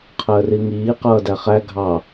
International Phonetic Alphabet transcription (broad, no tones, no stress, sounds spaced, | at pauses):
qʰ əː r i ŋ iː q ʌː d æ χ æ ɡʱ ɑ